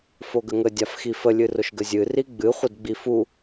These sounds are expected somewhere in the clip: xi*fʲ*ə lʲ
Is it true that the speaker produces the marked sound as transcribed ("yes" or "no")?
no